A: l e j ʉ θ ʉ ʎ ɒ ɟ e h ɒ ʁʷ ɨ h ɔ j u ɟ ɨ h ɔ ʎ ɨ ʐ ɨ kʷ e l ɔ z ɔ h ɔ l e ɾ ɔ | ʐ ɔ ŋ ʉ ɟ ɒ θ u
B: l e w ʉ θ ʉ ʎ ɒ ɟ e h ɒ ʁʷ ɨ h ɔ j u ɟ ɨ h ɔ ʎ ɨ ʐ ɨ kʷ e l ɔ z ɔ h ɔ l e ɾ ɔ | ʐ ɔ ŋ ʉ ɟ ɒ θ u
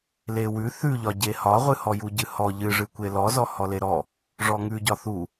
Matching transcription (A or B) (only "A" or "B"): B